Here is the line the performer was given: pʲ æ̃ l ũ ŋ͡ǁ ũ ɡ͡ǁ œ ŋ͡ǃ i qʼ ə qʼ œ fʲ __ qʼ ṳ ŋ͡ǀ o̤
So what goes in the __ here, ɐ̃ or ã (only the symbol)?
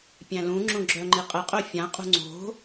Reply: ã